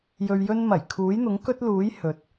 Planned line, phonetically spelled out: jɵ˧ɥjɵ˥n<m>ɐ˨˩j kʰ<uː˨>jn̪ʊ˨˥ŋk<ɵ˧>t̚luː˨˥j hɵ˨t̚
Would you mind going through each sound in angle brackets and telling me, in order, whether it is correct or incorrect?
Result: correct, incorrect: uː˨˥, incorrect: ɵ˥

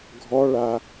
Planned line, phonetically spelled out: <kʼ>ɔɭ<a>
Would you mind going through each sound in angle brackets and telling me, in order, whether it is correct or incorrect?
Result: incorrect: ɡʱ, correct

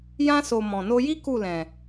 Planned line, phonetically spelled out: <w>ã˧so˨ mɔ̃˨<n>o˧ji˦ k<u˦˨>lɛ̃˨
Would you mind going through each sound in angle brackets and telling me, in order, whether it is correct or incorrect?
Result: incorrect: j, correct, correct

